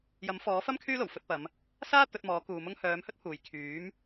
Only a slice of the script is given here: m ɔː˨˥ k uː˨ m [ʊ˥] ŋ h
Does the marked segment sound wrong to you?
no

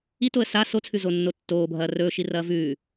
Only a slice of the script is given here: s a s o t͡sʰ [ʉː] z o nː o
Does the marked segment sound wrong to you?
yes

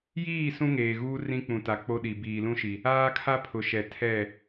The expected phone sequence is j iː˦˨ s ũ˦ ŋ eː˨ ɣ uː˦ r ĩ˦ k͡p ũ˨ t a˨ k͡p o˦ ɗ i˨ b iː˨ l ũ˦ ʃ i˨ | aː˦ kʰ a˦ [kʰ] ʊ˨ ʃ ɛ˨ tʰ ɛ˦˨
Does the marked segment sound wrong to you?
yes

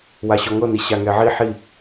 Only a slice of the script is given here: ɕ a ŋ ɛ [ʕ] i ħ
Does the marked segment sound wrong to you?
no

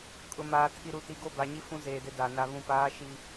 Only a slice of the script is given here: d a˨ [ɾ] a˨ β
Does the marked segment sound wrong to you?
yes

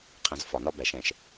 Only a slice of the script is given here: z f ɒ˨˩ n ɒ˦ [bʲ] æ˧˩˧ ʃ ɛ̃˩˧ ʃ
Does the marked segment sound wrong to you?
yes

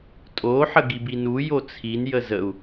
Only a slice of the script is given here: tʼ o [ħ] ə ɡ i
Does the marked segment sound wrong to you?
no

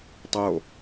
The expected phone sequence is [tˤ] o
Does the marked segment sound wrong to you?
no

